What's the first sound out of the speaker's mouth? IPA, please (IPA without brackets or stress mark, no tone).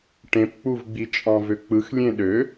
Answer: ʈ